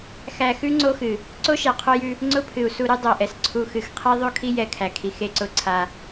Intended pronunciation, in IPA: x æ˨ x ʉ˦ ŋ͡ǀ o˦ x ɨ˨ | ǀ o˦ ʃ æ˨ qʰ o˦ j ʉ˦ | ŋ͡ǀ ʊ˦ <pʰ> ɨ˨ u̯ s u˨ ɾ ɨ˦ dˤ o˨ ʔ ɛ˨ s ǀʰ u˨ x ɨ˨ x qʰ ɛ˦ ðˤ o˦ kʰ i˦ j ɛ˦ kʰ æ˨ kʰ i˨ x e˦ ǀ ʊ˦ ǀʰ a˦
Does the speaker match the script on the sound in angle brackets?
yes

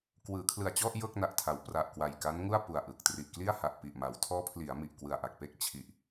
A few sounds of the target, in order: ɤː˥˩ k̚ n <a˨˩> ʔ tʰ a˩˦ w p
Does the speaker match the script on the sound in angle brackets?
yes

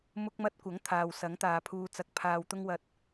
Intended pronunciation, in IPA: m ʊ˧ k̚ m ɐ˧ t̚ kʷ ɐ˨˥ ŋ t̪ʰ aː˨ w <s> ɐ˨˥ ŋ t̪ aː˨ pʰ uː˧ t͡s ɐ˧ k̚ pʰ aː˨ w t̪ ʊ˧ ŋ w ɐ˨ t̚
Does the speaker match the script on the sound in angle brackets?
yes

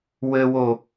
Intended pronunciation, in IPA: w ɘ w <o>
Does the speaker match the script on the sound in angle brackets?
yes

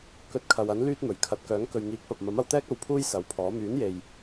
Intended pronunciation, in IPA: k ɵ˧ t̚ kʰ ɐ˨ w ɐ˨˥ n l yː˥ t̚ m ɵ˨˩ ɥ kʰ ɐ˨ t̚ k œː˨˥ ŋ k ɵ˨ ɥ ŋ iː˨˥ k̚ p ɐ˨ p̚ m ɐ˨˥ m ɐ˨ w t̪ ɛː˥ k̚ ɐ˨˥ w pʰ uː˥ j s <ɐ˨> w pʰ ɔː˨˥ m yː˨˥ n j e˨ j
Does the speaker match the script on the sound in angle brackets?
no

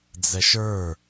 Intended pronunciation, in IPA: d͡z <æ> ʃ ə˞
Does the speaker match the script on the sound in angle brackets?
no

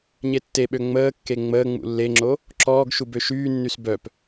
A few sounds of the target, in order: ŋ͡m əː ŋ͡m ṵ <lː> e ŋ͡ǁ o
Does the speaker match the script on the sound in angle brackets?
yes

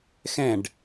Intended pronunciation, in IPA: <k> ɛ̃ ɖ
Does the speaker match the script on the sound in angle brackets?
no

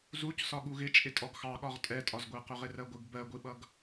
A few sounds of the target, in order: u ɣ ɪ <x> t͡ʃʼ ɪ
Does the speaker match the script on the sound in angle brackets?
no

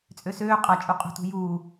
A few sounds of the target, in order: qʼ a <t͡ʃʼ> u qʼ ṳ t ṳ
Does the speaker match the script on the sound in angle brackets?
yes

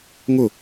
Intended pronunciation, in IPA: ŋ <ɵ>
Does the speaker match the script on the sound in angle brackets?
no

